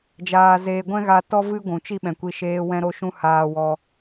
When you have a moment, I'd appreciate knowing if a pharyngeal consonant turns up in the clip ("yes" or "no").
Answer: no